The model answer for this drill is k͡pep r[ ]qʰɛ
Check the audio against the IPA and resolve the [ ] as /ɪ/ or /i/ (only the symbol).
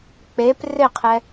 ɪ